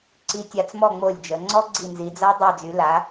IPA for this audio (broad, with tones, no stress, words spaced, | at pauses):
ǀi˩˧tʲa˩˧t͡smɔ˧˩ ŋ͡mo˧˩lʲd͡ʒə˩˧ ŋ͡ǀɔ˦˥ɡ͡ǀi˧˩nzi˩˧d͡za˦˥ dˤa˧˩d͡zy˩˧la˩˧